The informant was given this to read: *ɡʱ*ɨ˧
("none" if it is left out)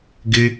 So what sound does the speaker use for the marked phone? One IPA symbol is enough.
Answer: ɡ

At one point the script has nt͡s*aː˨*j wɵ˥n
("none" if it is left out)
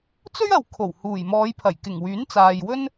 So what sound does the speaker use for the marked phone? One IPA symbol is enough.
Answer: aː˨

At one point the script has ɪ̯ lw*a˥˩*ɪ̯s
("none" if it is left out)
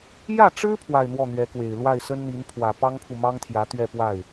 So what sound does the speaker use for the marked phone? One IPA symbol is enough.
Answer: a˥˩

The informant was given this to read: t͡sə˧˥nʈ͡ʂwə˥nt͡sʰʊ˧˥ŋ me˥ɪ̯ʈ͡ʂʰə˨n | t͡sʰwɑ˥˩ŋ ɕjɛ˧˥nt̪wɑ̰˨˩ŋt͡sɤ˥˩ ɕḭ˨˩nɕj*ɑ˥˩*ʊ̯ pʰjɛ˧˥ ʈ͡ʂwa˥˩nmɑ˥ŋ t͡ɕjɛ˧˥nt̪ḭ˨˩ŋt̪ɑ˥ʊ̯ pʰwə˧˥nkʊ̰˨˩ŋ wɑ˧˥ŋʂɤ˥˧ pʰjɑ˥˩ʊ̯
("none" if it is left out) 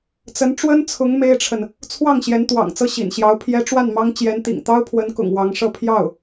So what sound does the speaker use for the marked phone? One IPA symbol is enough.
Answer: ɑ˧˥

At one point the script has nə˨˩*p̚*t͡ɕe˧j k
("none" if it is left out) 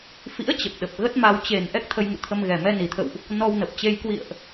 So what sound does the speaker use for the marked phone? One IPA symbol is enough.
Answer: p̚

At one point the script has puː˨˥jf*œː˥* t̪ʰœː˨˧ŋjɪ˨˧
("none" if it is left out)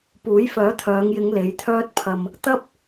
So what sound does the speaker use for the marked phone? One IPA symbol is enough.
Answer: œː˨˥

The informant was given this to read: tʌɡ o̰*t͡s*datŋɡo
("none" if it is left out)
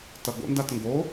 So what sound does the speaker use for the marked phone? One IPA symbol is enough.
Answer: n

